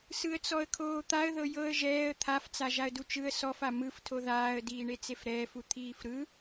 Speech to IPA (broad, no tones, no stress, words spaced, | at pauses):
sɯə̯t͡sɔə̯kʰoːt̪aə̯ ðɤjɤə̯ ʒɛːə̯ t̪ʰaft͡sa ʒaə̯dut͡ʃɯə̯ sɔfa mɯftʰo ðaːə̯diːɳe t͡sefɾɛːfu t̪ʰiːfɾɯ